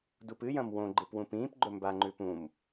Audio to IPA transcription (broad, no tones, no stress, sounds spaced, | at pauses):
d u p ɨ j ɐ̃ m w õ ɡ͡ǃ ɨ p w ũ p ĩː p ɡ͡ǃ ɵ m b a ŋ͡ǃ ʉ p ũ m